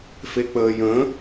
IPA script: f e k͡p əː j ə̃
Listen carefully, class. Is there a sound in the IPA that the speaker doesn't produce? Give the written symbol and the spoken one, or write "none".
none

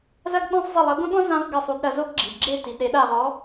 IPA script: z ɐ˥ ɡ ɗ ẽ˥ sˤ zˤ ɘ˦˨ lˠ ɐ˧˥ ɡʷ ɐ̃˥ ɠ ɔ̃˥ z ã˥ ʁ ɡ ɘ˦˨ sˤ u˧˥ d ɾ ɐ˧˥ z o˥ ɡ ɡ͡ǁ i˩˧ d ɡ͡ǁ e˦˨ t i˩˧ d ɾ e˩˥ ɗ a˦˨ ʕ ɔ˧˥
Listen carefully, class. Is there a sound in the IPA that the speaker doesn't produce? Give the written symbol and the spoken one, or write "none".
ʕ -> ʁ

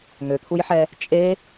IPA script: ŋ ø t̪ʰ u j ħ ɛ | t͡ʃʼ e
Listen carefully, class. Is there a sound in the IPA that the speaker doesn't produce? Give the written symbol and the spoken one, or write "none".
none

